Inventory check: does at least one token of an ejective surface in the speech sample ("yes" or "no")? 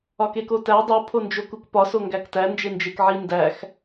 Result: no